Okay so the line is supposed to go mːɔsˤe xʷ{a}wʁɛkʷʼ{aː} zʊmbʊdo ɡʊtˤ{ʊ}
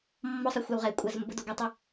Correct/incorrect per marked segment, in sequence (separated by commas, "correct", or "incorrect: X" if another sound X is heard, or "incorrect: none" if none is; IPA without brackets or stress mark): correct, incorrect: a, incorrect: u